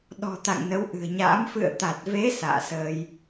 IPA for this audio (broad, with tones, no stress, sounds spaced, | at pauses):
ɗ ɔ̤˨˩ t̪ a̰˧˨ ŋ n ə˨˦ w ʔ ɨ̤˨˩ ə̯ ɲ a̰ː˧˥ m f ɨ̰˧˨ ə̯ t̪ a˨˩ t̚ v e˨˦ s a̰ː˧˨ s əː˧ j